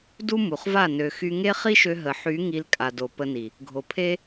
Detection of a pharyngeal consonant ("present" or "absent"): present